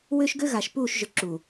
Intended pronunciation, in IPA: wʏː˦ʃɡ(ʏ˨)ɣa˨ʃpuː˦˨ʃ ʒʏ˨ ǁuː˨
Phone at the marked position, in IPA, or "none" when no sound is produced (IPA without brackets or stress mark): ʏ˦